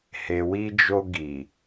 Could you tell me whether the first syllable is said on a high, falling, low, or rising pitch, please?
low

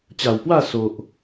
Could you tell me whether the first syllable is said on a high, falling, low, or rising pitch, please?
low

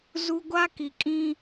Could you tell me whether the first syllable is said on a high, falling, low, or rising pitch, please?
high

